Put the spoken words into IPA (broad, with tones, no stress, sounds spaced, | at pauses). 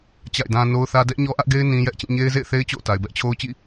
t͡ɕ a̰˦˨ ɪ̯ d ã˦ n o˦ ʊ̯ θ ä˦ d ɛ˦ ʔ ɲ ɔ˦ ʔ ä˦ ʔ ɡ e˦ ɪ̯ n ĩ˦ j ɛ˦ ʔ t͡ɕ ĩ˦˨ ɲ e˦ ɪ̯ z ḛ˦˨ ɪ̯ θ e˦ ɪ̯ t͡ɕ o̰˦˨ ʊ̯ t a˨ ɪ̯ b ɛ˦ ʔ t͡ɕʰ o˦ ʊ̯ t͡ɕ ḭ˦˨